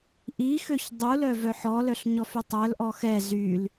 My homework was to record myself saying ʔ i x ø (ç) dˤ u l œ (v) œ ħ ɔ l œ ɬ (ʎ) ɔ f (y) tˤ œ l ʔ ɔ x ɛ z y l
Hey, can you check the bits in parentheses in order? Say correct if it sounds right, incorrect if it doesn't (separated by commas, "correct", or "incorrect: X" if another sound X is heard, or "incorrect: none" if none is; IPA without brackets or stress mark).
correct, correct, incorrect: ɲ, correct